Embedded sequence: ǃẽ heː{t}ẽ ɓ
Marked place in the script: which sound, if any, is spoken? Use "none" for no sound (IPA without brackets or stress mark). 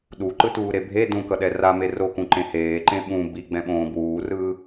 ǃ